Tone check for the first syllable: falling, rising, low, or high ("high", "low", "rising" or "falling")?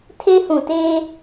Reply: high